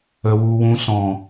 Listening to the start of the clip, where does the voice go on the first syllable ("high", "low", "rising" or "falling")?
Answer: low